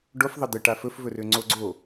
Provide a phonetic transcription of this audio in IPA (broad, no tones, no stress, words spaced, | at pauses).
ɖofðˤə d̪ə ʈafɵfvɵrø ŋ͡ǀoɡ͡ǀo